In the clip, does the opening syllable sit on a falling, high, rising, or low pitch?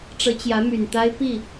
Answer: rising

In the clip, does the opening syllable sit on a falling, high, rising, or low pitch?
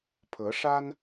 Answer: rising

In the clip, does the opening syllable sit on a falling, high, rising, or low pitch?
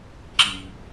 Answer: low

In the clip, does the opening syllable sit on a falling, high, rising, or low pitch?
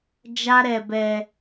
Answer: high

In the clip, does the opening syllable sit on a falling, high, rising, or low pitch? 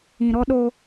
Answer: low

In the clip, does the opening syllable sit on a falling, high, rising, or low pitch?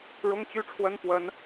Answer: high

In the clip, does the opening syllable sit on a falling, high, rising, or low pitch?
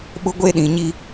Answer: high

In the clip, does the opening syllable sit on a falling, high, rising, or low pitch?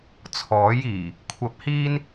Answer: rising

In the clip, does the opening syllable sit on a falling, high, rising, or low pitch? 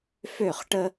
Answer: falling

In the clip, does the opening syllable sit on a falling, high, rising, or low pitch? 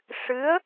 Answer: rising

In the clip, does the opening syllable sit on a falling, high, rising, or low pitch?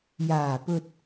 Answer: low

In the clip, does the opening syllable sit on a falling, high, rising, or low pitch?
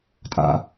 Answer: low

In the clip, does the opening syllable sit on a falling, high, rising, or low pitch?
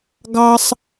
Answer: high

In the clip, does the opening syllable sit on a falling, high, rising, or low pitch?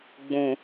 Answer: low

